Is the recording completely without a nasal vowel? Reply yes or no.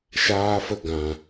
no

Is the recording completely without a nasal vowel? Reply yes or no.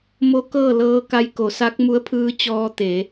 yes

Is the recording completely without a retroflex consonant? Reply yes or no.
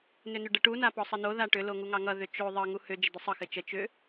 no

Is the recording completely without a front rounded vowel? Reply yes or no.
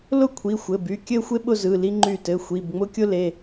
no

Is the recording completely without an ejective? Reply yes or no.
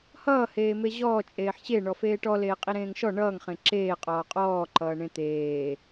no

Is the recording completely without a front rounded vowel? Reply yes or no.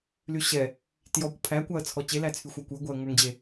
no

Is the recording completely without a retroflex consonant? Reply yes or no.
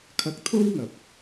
yes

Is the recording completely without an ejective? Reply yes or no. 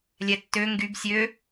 yes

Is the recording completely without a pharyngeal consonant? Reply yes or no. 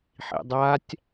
no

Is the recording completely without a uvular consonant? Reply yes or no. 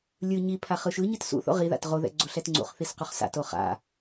no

